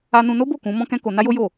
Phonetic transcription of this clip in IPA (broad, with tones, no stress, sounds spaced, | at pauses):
a˧ n ũ˧ n o˦ b o˦˨ k ũ˨˦ m ɔ̃˦ k ɛ̃˦ k o˧ n a˦ j o˦ j o˦˨